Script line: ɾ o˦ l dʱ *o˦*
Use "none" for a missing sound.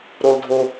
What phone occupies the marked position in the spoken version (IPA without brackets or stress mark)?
o˦